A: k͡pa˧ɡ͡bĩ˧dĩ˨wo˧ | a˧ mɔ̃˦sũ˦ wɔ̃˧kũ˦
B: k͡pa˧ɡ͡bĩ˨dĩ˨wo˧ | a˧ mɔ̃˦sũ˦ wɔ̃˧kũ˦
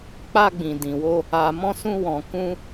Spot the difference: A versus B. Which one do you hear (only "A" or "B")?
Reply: B